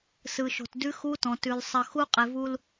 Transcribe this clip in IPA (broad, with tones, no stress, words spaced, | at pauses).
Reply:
sɯ˨ʃo̤˨tdʉ˦ xu˦tɔ̃˨tʉ˨l sˤə˨ xu˦ qʼe˨vu˦l